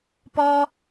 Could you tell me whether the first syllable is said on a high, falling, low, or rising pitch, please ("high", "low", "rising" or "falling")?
high